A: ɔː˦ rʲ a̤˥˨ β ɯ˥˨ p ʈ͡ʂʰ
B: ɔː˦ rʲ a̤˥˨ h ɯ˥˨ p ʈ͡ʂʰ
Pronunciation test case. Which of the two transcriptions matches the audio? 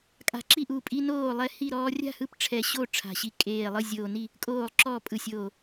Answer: B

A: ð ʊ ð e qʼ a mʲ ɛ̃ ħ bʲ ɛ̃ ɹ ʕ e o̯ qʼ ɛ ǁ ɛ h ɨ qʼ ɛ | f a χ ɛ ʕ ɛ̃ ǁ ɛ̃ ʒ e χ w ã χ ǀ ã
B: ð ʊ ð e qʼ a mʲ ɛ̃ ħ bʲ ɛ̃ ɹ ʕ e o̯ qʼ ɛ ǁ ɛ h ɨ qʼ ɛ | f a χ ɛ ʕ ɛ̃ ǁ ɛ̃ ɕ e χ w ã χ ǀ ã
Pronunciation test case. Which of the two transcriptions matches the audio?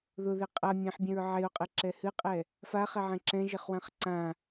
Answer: A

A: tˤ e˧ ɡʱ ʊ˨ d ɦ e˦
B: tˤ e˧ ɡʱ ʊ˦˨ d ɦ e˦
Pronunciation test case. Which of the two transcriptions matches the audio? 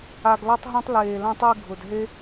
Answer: A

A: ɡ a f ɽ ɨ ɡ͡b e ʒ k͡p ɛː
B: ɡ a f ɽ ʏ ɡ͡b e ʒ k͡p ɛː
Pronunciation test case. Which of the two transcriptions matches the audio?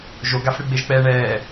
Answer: A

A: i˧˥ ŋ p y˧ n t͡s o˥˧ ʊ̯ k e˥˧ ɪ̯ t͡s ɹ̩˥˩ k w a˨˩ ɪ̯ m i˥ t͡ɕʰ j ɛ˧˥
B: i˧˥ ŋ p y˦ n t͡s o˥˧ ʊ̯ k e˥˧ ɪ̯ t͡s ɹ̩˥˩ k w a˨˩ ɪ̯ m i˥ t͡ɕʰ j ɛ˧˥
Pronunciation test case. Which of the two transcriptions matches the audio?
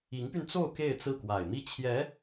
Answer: A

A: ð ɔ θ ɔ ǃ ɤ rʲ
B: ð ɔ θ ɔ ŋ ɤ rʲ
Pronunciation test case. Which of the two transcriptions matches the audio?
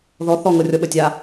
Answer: B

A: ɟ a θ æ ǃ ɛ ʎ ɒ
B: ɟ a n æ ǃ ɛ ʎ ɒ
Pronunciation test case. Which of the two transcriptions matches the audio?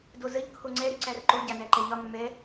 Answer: B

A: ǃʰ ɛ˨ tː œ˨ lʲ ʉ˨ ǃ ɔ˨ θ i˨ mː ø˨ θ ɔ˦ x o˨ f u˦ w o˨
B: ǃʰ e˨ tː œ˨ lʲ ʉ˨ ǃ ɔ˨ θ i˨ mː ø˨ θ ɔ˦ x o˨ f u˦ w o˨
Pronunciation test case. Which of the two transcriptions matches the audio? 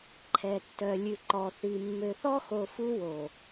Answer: A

